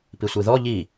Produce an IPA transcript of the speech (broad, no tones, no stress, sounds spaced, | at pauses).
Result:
p i sʷ i ð ɔ ʎ i